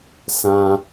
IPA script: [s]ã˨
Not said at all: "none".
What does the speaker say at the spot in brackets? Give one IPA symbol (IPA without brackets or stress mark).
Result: s